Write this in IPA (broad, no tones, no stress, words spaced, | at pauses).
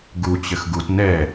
ɡut͡ɕɘx ɡut nɛ